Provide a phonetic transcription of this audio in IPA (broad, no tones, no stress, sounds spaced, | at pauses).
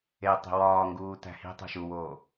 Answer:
e tˤ e̤ w ɒː ŋ ɡ uː t æ̤ h i̤ tˤ o̤ ʃ u w oː